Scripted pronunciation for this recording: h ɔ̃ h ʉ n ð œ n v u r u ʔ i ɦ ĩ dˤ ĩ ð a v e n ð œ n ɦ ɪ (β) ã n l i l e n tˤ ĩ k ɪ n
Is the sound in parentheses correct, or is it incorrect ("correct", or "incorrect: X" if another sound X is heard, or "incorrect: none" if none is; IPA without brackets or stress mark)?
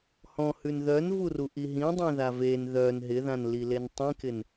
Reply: incorrect: ð